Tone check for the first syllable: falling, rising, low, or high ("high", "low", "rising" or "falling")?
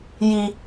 low